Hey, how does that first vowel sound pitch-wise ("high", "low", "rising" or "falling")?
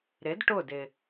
rising